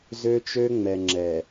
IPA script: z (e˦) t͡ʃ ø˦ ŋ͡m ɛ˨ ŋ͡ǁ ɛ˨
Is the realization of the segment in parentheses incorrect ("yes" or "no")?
yes